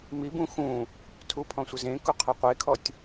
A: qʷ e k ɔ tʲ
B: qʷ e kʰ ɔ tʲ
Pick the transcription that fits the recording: B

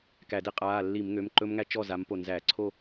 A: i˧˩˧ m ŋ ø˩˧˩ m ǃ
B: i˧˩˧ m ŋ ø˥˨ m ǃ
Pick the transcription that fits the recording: A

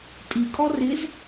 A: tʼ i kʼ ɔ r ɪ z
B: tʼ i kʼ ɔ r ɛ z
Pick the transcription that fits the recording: A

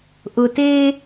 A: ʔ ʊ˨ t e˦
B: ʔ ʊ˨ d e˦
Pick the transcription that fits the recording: A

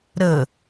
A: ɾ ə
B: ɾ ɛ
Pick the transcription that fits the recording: A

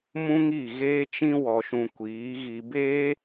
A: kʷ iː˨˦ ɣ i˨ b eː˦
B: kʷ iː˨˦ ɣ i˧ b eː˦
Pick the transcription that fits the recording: B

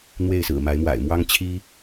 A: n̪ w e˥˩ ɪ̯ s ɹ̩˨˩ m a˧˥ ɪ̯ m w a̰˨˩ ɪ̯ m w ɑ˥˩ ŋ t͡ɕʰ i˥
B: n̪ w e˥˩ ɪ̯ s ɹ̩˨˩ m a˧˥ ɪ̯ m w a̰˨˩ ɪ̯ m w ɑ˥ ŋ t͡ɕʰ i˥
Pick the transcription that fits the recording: B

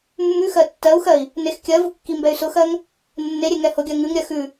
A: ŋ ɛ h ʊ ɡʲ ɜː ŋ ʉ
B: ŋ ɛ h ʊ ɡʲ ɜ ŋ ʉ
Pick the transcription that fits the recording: B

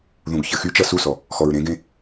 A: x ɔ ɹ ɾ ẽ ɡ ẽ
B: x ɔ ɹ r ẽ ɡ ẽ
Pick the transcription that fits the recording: A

